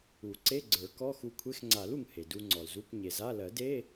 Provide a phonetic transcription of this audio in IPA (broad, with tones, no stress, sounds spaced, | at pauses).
u˨˩˦ ǀ e˧˥˧ ɡ͡ǀ ə˞˨˩˦ k ɔ˧˥˧ x u˧ kʷʰ e˧˥˧ x ŋ͡ǀ a˨˩˦ l u˩ ŋ h e˩ d u˧ ŋ͡ǀ ɔ˩ l z u˧˥˧ kʷ ɲ e˩ z a˧˥˧ l ɜ˨˩˦ d e˧˥˧